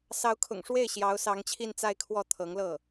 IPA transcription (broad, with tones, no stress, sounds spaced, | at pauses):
s ɑ˧˥ ʊ̯ kʰ ʊ̰˨˩ ŋ ʂ w e˥˩ ɪ̯ ɕ j ɑ˧˥ ʊ̯ s ɑ˧˥ ŋ t͡ɕʰ i˥˧ n t͡s a˥˧ ɪ̯ kʰ w ɔ˥˩ t̪ʰ ɤ˧˥ ŋ l ɤ˥˩